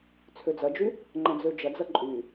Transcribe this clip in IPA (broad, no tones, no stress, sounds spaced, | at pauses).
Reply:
t͡sʰ ø d͡z ɐ d͡ʒ y | ŋ͡ǃ ɐ̃ d͡z ø d͡ʒ ɐ d͡z ɐ ǃʼ y